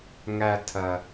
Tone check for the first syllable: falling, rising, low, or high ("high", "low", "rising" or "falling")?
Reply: low